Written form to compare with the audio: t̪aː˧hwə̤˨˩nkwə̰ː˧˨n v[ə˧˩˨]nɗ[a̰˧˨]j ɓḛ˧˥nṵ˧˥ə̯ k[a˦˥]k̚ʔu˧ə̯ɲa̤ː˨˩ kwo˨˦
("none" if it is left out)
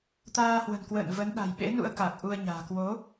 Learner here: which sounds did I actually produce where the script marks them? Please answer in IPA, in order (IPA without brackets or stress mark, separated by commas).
ə˨˦, a̤˨˩, a˨˩